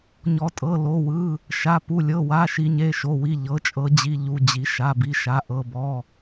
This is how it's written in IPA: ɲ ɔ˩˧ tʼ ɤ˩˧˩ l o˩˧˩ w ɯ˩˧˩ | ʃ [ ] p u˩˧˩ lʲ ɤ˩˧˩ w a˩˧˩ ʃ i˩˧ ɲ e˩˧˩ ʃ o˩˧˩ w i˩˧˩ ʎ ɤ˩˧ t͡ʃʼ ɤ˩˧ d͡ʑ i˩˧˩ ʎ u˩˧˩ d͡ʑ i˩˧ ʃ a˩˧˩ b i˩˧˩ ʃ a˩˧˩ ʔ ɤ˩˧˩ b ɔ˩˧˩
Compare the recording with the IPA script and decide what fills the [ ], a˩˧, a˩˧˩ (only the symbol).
a˩˧˩